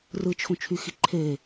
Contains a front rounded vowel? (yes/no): yes